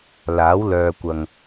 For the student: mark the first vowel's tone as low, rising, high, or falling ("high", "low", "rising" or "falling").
rising